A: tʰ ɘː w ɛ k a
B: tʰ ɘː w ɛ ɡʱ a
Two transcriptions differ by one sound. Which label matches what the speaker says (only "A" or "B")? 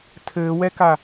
A